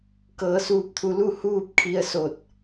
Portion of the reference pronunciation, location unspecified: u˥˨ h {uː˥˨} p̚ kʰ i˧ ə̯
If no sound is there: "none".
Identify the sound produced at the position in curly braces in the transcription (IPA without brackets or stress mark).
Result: uː˥˨